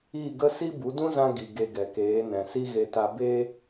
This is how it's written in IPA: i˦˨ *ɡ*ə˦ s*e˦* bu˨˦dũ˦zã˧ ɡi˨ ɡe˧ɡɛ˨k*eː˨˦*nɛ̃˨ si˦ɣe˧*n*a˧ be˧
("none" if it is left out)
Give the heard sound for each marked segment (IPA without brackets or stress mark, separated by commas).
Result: ɡ, i˦, eː˨˦, t